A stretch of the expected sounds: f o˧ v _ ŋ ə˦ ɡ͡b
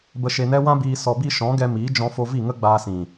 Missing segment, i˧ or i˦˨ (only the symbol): i˦˨